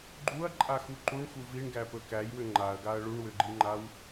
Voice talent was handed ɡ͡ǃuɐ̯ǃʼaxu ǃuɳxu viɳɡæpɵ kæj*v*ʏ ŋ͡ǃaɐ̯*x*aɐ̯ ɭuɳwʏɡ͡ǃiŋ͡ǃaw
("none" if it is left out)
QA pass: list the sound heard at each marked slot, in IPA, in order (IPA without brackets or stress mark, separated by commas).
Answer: w, ɡ